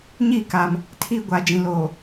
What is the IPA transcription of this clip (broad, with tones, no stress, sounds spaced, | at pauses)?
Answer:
ɲ iː˦˨ k a˨ m | tʰ i˦ ɡʷ a˨ d͡ʒ ĩ˨ l oː˨